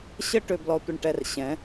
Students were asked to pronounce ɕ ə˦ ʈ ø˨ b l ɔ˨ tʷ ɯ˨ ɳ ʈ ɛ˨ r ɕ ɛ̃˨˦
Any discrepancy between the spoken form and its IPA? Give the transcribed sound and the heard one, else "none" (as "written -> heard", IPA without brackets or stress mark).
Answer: none